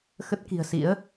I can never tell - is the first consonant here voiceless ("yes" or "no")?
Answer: yes